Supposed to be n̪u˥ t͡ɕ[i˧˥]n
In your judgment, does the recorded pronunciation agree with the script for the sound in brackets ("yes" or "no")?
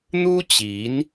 yes